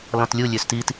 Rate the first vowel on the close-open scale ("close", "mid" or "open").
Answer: mid